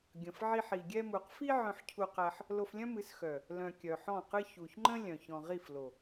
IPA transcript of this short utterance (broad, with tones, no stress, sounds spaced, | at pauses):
ɡʲ ə̃˨ f ʕ i˧ ħ i˨ ɡʲ ɛ˧ m u˨ q f i˦ ʕ œ̃˧ ħ cʰ u˧ q æ˧ ħ | l o˧ f lʲ œ̃˦ m ɨ˨˦ s x œ˨ | l œ̃˨ kʲ œ˨ ħ ɔ̃˦˨ q ɨ˦ ç u˨ ç ŋ͡ǃ ə̃˦ lʲ œ̃˨ ç ɔ̃˨ ʁ i˦˨ f l o˨